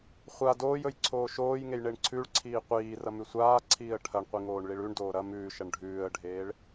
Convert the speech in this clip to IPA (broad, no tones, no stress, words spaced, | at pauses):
χʷa doːjɵj ǀʰoːʃoːjŋej ɳeɳǀʰʉɭǀʰiː qʷiːrɐmʉ sʷaːǀʰiːə̯ ʈʰɐɳqʷi ŋoːɳɭiɭʉɳ doːɾɐ mʉːʃɐɳ ɖʱʉːə̯ɖʱeːɭ